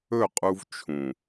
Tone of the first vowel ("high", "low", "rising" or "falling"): falling